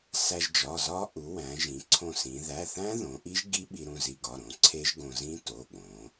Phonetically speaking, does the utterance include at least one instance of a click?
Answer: yes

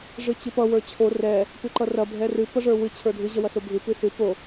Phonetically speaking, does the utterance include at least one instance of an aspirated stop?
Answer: yes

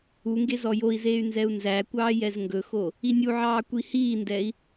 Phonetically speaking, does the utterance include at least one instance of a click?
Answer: no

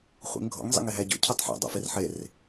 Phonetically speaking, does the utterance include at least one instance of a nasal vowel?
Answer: no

